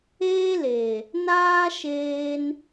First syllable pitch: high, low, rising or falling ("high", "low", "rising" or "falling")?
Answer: high